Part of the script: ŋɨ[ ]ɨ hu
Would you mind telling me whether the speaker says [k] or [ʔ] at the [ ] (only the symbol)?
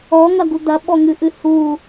ʔ